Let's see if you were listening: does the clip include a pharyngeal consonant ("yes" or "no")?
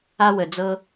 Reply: no